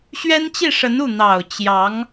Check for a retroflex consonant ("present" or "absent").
present